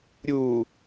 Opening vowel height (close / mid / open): close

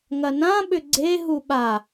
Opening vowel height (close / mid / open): open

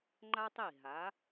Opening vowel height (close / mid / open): open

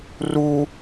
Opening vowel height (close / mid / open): close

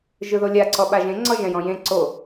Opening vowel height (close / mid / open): close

